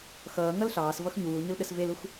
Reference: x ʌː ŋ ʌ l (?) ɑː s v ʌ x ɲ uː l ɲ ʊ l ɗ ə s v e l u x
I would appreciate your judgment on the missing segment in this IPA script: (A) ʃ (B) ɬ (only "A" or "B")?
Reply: B